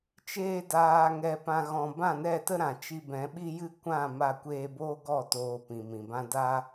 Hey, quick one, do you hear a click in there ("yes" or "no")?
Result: no